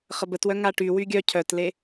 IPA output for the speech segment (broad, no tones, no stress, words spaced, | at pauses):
χəbətwœ ŋaʈy wyɡʲœ cʰœtle